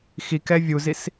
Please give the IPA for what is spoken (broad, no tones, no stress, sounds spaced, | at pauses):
x i k ɛ vʲ u z i s